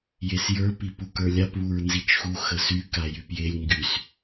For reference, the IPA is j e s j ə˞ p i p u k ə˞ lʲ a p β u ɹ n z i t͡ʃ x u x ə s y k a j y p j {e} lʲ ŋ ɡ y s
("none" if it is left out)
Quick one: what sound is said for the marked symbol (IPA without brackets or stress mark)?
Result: e